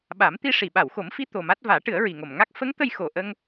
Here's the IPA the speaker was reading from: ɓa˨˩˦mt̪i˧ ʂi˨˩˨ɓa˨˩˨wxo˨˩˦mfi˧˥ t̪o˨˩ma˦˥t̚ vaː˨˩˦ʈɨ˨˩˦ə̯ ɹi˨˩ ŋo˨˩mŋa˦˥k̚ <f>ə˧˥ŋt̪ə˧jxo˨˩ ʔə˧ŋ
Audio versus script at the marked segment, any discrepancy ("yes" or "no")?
no